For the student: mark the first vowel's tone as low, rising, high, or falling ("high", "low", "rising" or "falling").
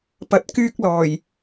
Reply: rising